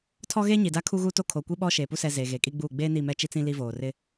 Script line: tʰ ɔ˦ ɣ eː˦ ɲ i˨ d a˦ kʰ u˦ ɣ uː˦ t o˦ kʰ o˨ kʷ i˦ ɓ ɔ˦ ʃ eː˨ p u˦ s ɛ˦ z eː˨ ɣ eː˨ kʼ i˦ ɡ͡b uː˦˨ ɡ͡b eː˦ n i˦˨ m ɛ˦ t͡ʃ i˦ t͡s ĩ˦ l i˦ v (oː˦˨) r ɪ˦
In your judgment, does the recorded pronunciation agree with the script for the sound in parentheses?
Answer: no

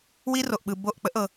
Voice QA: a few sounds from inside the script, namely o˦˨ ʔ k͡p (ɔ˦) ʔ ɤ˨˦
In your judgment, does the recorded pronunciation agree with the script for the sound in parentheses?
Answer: no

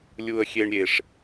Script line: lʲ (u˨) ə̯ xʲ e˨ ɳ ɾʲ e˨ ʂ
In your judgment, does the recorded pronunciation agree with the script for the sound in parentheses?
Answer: yes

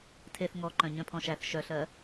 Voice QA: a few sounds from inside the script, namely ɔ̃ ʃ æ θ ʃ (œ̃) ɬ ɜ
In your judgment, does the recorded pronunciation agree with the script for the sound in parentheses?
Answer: no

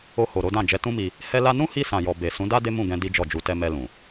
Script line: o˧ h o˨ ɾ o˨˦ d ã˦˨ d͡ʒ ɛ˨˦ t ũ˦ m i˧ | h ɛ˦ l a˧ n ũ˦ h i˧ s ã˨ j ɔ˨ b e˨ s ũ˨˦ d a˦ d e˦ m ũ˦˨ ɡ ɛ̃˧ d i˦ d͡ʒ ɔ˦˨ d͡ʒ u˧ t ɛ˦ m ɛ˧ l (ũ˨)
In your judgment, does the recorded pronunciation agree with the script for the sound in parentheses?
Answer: yes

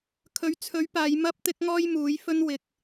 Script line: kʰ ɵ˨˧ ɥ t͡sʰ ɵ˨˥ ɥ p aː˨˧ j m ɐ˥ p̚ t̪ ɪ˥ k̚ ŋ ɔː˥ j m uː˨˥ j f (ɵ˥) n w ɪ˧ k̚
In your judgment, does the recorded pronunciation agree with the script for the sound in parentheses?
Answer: yes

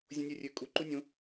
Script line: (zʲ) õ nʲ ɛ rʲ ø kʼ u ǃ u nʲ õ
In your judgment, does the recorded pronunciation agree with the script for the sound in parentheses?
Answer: yes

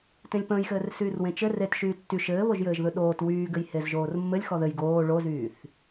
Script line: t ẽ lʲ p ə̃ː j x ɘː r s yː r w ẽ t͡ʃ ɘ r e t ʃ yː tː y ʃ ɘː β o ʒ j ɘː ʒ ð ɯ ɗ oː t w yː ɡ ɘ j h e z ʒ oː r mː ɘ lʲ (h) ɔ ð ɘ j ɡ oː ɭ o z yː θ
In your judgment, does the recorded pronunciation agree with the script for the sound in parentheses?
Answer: no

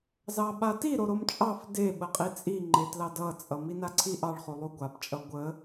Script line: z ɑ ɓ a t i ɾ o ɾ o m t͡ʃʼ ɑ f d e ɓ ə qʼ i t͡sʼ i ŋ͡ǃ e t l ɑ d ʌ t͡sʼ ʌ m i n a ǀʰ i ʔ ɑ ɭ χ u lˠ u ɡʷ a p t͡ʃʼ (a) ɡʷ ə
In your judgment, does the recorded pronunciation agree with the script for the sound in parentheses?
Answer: no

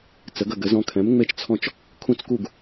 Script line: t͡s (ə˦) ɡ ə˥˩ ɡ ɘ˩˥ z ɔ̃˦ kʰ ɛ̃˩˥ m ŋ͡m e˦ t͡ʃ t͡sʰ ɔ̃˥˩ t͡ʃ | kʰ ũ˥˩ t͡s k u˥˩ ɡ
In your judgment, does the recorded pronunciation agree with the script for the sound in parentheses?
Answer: no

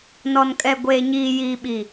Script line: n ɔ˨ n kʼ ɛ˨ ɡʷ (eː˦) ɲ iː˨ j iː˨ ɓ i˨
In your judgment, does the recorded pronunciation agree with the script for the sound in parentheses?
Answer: no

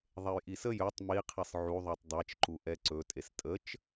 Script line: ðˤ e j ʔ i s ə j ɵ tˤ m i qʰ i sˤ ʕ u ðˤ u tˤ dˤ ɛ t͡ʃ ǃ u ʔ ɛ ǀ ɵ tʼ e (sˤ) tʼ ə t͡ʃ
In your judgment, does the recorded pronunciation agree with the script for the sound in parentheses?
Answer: no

